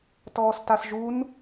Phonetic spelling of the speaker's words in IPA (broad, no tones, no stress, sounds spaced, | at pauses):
t ɔː s t a s ʒ u n